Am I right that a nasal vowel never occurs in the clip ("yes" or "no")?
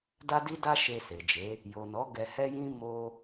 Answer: no